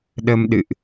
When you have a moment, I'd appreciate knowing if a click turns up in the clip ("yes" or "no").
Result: no